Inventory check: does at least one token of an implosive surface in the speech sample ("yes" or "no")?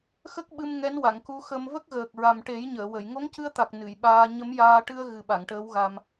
yes